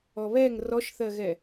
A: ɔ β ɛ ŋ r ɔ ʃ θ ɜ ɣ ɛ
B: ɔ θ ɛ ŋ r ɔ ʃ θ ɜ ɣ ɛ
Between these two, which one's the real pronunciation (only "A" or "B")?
A